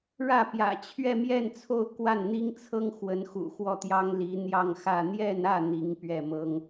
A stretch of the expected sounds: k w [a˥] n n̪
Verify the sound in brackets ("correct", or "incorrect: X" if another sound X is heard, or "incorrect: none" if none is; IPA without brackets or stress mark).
incorrect: a˥˩